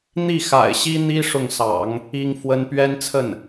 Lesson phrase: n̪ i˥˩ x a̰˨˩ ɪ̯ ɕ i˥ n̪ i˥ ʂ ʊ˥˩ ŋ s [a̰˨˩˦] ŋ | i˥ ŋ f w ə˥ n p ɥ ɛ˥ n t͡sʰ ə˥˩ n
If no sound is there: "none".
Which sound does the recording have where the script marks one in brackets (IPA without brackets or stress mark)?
ɑ̰˨˩˦